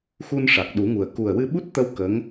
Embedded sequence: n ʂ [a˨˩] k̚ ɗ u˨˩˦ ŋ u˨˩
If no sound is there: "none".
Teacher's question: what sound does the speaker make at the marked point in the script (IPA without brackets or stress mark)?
a˨˩